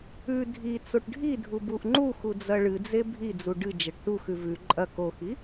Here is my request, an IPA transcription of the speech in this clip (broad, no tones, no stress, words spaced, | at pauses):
ʉ dʱi t͡soʈɖʱidʱu buʔŋ͡ǃuxu d͡zɐɭɨd͡ze bʱid͡zu ɖɨ d͡ʒɐʈtuxʉ vʉ ǃʼɐ koxi